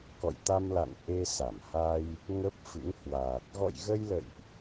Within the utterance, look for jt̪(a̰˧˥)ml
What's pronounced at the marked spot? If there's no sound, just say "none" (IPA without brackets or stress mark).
a˧